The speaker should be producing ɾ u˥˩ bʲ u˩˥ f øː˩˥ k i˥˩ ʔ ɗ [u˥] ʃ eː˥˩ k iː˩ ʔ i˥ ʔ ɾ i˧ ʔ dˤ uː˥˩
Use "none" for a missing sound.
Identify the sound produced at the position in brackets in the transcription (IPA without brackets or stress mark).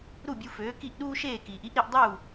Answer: uː˥